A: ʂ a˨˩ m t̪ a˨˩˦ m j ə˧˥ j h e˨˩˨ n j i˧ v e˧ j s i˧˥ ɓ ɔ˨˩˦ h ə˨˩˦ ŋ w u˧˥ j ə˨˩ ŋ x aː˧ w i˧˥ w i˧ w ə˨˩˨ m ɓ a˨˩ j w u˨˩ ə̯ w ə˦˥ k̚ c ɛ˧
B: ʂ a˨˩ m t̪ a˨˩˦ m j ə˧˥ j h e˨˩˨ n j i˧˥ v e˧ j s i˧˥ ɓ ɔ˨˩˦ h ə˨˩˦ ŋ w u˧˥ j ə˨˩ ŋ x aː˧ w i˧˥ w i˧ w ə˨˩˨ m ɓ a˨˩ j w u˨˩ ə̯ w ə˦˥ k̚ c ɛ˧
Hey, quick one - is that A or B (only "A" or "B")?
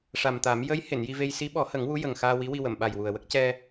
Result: A